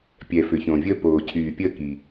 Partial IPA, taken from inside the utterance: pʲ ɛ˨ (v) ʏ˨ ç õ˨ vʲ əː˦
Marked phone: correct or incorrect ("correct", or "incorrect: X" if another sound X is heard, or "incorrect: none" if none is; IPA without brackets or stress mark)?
incorrect: f